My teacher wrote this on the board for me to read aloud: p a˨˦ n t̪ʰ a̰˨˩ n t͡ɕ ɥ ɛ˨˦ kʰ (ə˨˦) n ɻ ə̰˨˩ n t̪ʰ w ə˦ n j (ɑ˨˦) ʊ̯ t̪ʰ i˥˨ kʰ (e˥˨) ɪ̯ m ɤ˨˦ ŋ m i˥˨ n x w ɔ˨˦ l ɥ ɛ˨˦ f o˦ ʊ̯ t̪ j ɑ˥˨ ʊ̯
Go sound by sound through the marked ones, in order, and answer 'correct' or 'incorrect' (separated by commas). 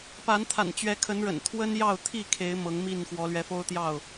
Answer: correct, incorrect, incorrect